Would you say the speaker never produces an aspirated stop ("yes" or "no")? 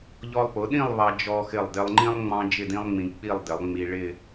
yes